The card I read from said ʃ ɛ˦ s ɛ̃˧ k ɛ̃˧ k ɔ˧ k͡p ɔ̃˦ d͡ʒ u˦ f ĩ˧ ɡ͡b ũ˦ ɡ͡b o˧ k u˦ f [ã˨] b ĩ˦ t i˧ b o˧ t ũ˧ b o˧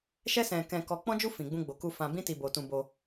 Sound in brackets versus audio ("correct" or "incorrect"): incorrect